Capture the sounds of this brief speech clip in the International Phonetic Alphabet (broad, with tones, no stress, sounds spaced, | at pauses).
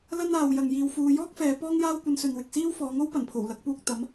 l ɐ˥ n aː˨ w j ɐ˨ ŋ j iː˨ w f uː˨˧ j ɔː˥ k̚ f ɛː˨˧ p ɔː˥ ŋ j aː˥ w kʷ ɐ˧ n s ɵ˨ n w ɪ˨ k̚ s iː˥ w f ɔː˨˥ ŋ o˥ w p ɐ˨˩ n pʰ o˨˩ w l ɐ˨˥ k̚ p uː˧ k̚ t̪ ɐ˨˥ m